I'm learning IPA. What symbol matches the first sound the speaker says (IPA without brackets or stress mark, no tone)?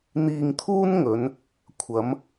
n̪